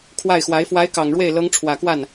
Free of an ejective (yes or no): yes